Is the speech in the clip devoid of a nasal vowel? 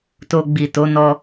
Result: yes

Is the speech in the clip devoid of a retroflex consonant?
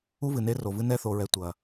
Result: yes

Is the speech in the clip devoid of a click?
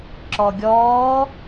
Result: no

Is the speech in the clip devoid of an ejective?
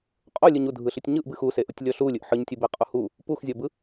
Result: no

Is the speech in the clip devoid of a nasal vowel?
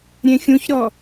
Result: no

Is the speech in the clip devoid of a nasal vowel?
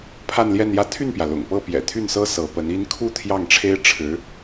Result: yes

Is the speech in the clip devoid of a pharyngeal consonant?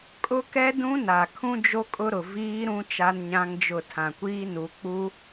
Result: yes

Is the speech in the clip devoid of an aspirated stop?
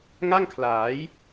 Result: no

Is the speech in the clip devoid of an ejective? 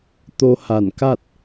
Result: yes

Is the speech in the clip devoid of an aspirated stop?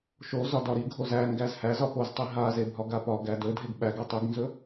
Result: yes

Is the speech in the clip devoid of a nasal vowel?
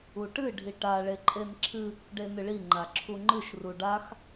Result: yes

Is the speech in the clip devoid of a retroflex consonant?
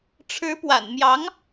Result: no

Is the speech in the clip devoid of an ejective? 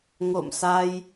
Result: yes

